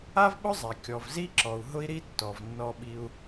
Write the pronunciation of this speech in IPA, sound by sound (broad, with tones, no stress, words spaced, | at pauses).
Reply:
a˥vɓʊ˥zˤɛ˩ kʲɔ˩vzi˥ǁɔ˩u̯ ɦʊ˥i̯ɾi˥ tːɔ˩vnːɔ˧ɓi˧u̯